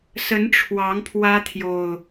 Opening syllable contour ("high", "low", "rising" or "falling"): rising